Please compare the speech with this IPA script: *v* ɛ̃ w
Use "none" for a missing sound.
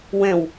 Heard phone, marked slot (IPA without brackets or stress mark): w